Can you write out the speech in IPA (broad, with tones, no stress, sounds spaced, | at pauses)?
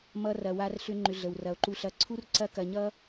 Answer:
m ʌ˧ r ɐ˨ w a˧ r ɬ ʏ˦ ŋ͡ǃ ʏ˧ ɮ ə˨ w r ɐ˨ o̯ ǃ u˧ ɬ ɐ˧ ǀʰ u˦ r ǀ ɐ˦˨ k ɐ˧ ɲ ʌ˦